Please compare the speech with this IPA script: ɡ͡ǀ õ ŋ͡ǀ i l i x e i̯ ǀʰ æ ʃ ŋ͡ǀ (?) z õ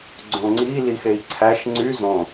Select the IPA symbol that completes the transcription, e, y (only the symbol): y